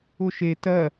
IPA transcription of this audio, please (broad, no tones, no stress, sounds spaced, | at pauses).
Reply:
ʊ ʃ e t ɜ